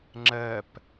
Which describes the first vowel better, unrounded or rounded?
unrounded